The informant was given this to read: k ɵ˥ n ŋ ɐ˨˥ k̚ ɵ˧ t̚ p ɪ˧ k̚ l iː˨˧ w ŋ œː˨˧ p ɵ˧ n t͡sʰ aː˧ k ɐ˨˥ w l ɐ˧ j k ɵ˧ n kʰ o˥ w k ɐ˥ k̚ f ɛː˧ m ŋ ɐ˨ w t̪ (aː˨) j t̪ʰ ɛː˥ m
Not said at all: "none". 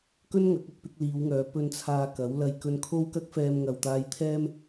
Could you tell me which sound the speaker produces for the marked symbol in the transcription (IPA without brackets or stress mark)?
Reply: aː˧